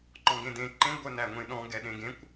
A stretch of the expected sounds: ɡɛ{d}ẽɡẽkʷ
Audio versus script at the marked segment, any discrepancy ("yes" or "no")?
yes